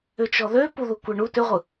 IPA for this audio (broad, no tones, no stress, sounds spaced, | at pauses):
ʏ t͡ʃ ɔ ð ø p u ð u kʷ ɛ ɳ u t ʏ ʁʷ ɯ